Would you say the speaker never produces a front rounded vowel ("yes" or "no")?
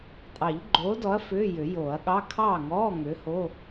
no